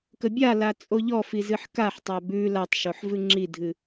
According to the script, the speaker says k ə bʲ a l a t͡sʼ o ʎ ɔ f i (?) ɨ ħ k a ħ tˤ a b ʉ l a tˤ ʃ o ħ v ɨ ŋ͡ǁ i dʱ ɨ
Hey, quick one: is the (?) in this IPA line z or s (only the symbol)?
z